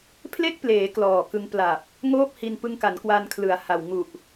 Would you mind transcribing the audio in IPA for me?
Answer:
pʰ l e˥˩ k̚ p l eː˩˦ k l ɔː˨˩ k ɯ˧ ŋ p l a˨˩ p̚ | ŋ oː˥˩ p̚ h i˧ n p ɯ˧ ŋ k a˩˦ n k w a˧ n kʰ l ɯ˩˦ a̯ h a˨˩ w ŋ u˨˩ ʔ

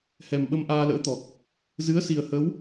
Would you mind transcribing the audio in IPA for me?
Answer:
h ɛ˨˩ m ɓ ə˧ m ʔ aː˧ l ə̰ː˧˥ t̪ ɔ˨˩ k̚ | z ɨ˨˦ ə̯ s i˨˩ ə̯ h ə˨˦ w

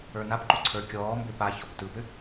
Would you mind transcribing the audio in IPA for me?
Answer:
ə˞ n a p ǃ u ǀʰ ə˞ kʲ ɔː m b ʏː p a ç ɔ p t ɯ p ʏ

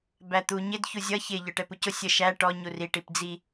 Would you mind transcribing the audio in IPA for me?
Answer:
b æ t̪ u ɲ ɪ d ç u zʲ ʌ ç ɪ ʎ ə˞ ʈ ɛ p u c ʊ sʲ ə ʃ æ ʈ ɔ ɲ u r i ʈ i p d͡z i

